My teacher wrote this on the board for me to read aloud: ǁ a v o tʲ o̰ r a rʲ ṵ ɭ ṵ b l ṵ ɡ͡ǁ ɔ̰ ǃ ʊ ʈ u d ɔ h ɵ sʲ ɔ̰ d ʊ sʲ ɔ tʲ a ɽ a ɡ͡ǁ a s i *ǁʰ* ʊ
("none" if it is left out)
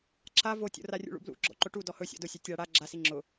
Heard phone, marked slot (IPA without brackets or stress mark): ŋ͡ǁ